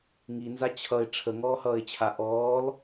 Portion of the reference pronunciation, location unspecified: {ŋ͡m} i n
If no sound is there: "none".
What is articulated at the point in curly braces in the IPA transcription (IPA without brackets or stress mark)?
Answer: ŋ